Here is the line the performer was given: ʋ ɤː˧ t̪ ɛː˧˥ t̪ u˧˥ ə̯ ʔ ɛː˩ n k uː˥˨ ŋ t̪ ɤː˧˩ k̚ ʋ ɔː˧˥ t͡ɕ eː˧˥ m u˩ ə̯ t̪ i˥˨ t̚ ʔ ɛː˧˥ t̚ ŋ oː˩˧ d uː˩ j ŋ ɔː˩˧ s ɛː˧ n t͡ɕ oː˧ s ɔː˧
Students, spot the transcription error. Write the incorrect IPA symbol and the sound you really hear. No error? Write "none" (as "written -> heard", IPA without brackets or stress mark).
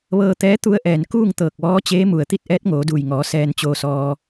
none